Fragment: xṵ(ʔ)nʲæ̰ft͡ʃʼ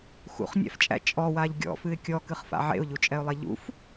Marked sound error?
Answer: yes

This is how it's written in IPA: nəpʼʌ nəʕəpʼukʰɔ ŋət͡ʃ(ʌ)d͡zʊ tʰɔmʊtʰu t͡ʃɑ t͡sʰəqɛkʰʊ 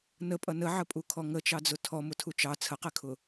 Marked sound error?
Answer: yes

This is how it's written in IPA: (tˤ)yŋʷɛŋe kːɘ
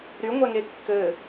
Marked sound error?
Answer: yes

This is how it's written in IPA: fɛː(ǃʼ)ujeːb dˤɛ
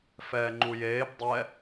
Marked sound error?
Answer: yes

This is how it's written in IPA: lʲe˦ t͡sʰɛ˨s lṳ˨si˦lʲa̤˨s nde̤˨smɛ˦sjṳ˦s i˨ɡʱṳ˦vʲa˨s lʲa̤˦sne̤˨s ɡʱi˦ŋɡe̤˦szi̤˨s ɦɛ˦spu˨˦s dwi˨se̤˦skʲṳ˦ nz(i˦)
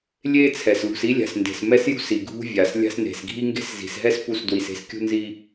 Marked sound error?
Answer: no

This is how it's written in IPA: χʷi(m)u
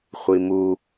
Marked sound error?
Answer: no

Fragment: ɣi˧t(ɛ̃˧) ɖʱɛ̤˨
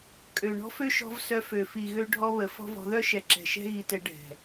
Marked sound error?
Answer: yes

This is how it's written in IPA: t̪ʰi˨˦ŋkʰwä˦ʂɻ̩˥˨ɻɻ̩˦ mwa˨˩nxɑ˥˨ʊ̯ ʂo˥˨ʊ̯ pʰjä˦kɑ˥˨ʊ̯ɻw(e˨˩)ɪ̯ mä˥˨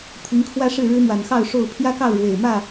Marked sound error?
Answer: no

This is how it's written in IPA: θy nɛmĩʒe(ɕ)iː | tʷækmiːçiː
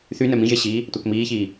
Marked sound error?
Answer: no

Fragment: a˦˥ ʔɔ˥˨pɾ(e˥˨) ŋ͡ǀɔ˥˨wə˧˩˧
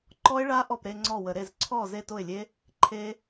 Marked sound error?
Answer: yes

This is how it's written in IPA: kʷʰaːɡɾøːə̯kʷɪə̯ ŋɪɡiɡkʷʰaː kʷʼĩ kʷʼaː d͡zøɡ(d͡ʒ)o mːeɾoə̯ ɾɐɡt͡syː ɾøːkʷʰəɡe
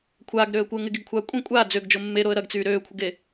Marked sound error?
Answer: no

